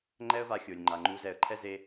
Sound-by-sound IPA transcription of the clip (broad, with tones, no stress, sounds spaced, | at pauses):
ŋ͡ǃ ɛ˦ ə̯ v a˧ xʲ o˨ lʲ ŋ͡ǃ a˨ ŋ͡ǃ u˧ z ɛ˧ ə̯ ǃʰ ɛ˦ z e˦